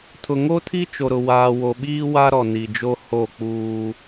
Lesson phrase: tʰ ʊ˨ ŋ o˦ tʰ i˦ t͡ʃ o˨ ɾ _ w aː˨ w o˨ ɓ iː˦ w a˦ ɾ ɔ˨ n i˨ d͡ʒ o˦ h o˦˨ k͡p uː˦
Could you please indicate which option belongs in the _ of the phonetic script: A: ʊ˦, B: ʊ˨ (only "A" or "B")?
B